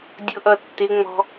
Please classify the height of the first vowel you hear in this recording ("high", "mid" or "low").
high